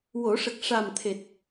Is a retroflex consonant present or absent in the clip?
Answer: present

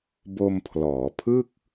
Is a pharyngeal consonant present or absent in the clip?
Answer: absent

